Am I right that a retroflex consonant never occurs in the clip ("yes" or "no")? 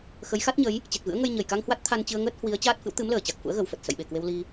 yes